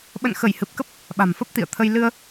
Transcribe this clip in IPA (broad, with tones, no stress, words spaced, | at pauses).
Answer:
ɓə̰˧˨nxə˧˩jhɨ˨˩p̚kə˦˥p̚ | ɓa̤˨˩mfə˦˥p̚t̪ḭ˧˨ə̯ t̪ʰə˧j lɨ˧ə̯